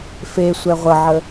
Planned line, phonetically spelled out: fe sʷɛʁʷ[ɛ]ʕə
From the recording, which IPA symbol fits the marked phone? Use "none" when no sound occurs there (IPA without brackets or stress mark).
ə